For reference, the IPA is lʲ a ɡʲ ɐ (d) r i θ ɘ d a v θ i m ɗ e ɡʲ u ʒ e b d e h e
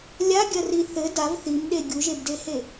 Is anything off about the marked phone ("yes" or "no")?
yes